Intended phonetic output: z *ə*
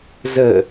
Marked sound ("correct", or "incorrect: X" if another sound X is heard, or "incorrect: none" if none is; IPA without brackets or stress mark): correct